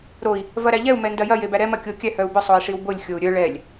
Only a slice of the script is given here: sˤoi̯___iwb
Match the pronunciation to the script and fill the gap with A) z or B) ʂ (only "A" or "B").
B